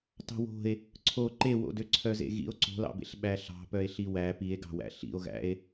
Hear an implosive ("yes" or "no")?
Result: yes